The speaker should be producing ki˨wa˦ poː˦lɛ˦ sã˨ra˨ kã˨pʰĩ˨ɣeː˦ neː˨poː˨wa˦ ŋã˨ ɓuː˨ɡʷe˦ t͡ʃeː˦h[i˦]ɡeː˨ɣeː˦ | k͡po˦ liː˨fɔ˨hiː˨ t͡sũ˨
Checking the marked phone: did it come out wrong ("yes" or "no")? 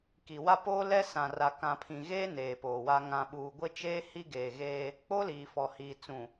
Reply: no